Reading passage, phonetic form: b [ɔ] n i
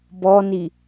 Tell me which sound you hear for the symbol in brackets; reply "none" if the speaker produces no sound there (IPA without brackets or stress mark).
ɔ